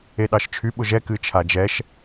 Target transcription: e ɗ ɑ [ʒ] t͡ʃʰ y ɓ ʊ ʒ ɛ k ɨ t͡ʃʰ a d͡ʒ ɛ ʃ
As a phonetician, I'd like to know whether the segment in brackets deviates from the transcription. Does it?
yes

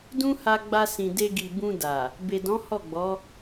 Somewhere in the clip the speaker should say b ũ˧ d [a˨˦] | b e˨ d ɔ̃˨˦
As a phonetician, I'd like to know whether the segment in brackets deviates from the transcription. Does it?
yes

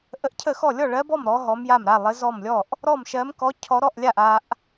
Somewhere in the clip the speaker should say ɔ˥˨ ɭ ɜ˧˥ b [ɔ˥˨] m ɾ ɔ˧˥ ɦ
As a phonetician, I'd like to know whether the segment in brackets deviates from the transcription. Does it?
no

